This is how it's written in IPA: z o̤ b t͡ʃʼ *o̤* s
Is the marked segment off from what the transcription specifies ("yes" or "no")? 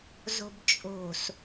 no